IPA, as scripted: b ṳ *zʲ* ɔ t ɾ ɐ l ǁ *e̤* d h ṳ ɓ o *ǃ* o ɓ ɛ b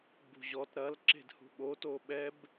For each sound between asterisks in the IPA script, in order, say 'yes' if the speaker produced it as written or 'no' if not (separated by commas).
no, yes, no